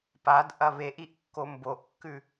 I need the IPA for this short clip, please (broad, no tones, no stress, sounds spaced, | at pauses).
p a d ʔ ɐ β e ʔ i ʔ kː o m b o ʔ kː ʉ